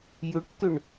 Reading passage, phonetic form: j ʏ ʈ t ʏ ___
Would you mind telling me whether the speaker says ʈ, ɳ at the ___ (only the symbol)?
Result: ɳ